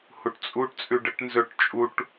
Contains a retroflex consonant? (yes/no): yes